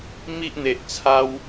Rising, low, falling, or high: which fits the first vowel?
high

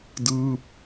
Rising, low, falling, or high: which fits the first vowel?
falling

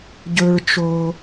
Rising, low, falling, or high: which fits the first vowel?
low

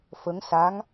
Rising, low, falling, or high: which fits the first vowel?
rising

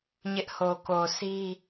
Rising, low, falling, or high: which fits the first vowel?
high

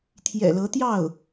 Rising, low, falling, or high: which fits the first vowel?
low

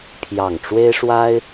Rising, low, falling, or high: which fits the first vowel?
low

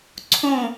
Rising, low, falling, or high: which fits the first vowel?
falling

